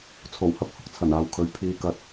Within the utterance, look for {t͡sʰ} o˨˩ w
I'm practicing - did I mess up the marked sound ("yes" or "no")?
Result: no